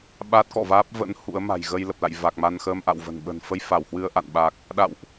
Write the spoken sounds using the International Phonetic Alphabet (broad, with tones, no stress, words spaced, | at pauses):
ɓa˦˥t̚kɔ̰˧˨vaː˦˥p̚ və̰˧˥n hṵ˧˥ə̯ma̤˨˩j ɣə˧jlə˨˩p̚la̰˧˨jva˨˩k̚ ma˧nxəː˧mʔa̰˧˨wvə̤˨˩n ɓə̤˨˩nfə˧j fa˧˩whwɨ˧ə̯ʔa̰˧˨n ɓa˨˩k̚ | ɗa̰˧˨wʔ